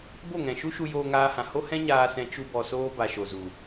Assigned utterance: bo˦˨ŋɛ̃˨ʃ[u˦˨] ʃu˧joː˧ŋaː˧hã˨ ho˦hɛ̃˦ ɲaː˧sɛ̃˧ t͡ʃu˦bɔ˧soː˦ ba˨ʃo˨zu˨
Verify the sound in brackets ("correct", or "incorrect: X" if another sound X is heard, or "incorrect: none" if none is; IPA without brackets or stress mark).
incorrect: u˦